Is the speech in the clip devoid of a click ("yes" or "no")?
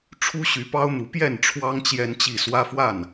yes